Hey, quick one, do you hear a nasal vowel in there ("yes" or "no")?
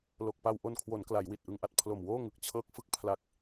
no